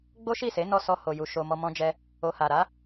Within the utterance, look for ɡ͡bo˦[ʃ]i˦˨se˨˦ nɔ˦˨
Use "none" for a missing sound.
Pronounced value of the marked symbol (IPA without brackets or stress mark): ʃ